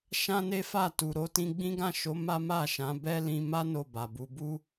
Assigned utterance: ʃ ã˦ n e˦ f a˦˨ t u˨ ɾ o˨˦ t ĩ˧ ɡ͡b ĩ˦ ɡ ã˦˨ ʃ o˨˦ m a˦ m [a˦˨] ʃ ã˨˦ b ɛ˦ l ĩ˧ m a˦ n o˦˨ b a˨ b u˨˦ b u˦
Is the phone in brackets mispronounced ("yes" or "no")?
no